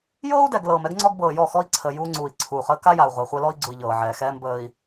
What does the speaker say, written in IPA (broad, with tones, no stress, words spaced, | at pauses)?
jɤː˦u̯dɛ˨ɡ lɤː˨mɛ˦ɡŋ͡ǀɔ˦ɡ bɤː˨jɔ˦˨xɔ˦i̯ǀʰəː˨ juː˦ŋ͡ǀuː˨i̯ǀʰuː˨χəː˦ ka˦ja˨u̯ ʁʷa˨χʷɛ˦lɔ˦i̯ɡ͡ǀu˨i̯ ʎɤː˨ʕɛː˨ xɛː˦m bəː˦i̯